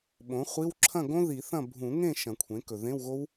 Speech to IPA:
ɓ õ˩˥ χʷ i˧˥˧ w ǁʰ ɐ̃˥˨ ɡ õ˦˥ ð i˨˩˦ θ ɐ̃˥˨ bʱ ũ˨˩˦ ŋ ẽ˥˨ ʃ ɐ̃˨˩˦ kʷʰ ẽ˩˥ k ɵ˨˩ ð ẽ˧˥˧ w ɣ o˦˥ w

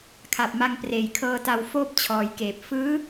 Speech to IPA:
kʰ a˨˩ p̚ m a˧ ŋ p r eː˨˩ j kʰ ɤː˧ t a˧ w f oː˥˩ p̚ t͡ɕʰ ɔː˩˦ j k eː˨˩ p̚ f ɯː˦˥

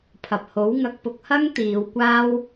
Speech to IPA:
pʰ ɐ˨ p̚ h o˨˥ w ŋ ɐ˧ k̚ p ʊ˧ k̚ h ɐ˥ ŋ t̪ iː˨˧ w kʷ aː˥ w

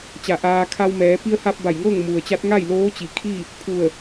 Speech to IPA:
t͡ɕ a˧˩ ʔ aː˧ kʰ a˧ w m ɛː˩˧ p i˧ ə̯ h a˧ p̚ b a˧˩ j ŋ ɤː˥˨ ŋ m u˩ ə̯ t͡ɕ a˧˥ t̚ ŋ a˥˨ j l oː˧˥ t͡ɕ i˩ kʰ i˥˨ | pʰ u˧˩ ə̯

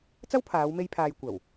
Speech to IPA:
t͡s ɐ˥ w pʰ aː˨˧ w m e˧ j pʰ aː˨ j kʷ ɐ˨˩ w

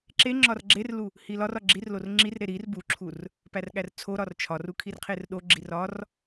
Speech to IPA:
ǁ e ŋ͡ǁ ɒ r ɡ͡ǁ e r l u | h i l ɒ r ɒ ɡ͡ǁ i r l o r ŋ͡ǁ i r ɾ e ɾ i r b u ǁʰ u r | p æ r ɠ æ r t͡sʰ o ɾ ɒ r t͡ʃʰ ɒ r u kʰ i r qʰ e r ɗ o ɡ͡ǁ i r ɒ r

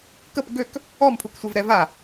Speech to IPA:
k ə p ɡ ø k | ɔ m pʰ u k sʷ e v ɾ ɛ v a

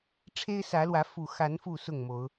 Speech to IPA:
ʈ͡ʂʰ e˦ ɪ̯ s ä˨˦ l w ä˨˦ f u˨˩ x a˨˦ n f u˥˨ s ʊ˥˨ ŋ m o˨˦ ʊ̯

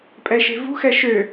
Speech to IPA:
pʼ ɛ ʃ e̤ v ṳ x ɛ ʃ ø

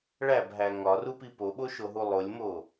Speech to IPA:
ɭ æ b ɦ æ ŋ ɒ r u p i p o ɓ o ʃ o ɦ u lˠ o lʲ m o

